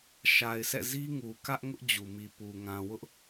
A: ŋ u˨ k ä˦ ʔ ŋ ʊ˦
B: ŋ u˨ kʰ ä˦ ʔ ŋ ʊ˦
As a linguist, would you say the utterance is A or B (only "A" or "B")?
A